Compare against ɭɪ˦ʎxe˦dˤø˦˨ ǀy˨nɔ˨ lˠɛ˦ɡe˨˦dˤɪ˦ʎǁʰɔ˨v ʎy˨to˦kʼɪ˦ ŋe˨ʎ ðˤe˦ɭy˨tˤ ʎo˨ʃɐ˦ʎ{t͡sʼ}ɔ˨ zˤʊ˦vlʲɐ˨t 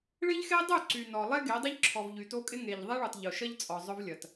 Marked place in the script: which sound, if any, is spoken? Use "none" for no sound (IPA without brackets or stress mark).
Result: t͡sʼ